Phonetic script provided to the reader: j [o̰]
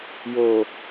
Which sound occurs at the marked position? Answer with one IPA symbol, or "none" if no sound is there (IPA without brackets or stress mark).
o